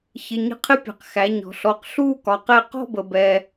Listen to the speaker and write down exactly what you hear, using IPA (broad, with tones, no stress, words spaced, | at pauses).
çɪ˩˧˩ ɲə̤˧qʰɪ˥˧pʲɛ̤˩q xæ˩˧ɲɔ̤˩ɬɔ˩˧˩q ɬuː˥˧kɒ˩˧ qɛ˥˧ qɔ̤˥˧bə˩bɛː˩